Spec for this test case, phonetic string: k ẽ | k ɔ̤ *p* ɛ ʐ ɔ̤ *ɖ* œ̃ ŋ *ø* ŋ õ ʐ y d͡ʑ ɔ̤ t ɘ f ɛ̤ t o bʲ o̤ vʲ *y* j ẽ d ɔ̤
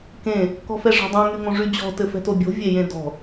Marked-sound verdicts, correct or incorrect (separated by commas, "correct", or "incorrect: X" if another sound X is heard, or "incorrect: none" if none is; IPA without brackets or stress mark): incorrect: f, incorrect: dˤ, incorrect: y, incorrect: e